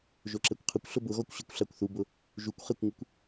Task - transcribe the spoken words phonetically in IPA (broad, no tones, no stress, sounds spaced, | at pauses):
ʒ o ǁ ɛ kʷ qʰ ʊ kʷ ɬ ʊ b ʊ ɣ ɔ kʷ ɕ i kʷ ɬ a kʷ θ u b ʊ | ʒ u kʷ χ e kʷ ŋ ɪ kʷ